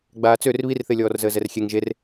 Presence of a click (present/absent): absent